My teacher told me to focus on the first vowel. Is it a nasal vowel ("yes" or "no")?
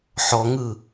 no